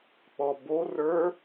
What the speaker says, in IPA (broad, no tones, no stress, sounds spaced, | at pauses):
k͡p ɔ b o r ə˞